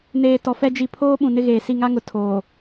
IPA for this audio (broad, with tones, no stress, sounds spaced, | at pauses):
n eː˨ t ɔ˨ f ɛ˦ d͡ʒ i˨ pʰ oː˦ ɓ ũ˨ n ɪ˦ ɣ eː˨ s i˦˨ ŋ a˦ ŋ ʊ˨ tʰ oː˨